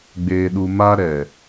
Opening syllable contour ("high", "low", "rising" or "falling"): low